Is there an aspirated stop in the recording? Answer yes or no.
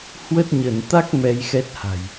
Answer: no